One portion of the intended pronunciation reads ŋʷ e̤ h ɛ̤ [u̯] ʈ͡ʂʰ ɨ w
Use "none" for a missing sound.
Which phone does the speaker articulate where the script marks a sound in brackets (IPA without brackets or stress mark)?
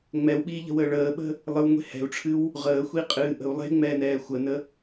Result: u̯